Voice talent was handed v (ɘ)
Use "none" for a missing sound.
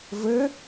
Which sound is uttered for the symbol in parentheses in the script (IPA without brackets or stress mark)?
ɘ